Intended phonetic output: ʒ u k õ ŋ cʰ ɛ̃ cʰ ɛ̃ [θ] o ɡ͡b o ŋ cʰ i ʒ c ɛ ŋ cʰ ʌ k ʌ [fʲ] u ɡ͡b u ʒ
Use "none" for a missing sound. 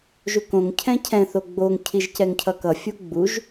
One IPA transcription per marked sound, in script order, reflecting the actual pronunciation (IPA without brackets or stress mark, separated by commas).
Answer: θ, fʲ